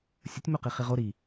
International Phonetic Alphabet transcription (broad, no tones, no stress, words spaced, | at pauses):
sʲətʲmoqi χiʁo ɾi